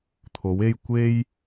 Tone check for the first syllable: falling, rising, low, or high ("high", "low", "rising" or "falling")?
rising